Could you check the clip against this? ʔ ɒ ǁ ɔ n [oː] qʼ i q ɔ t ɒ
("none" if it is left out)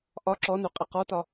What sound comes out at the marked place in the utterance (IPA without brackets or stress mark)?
o